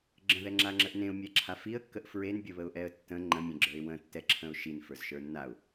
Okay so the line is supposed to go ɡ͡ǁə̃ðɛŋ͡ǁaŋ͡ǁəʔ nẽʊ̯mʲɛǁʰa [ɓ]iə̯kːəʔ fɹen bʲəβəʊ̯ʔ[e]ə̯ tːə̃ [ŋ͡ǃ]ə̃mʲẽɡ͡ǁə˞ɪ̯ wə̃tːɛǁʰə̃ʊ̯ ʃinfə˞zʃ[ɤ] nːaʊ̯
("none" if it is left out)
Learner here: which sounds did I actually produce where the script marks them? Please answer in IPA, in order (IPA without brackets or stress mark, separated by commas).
f, ɛ, ŋ͡ǃ, ə˞